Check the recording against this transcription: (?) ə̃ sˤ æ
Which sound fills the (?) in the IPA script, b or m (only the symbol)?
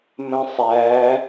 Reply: m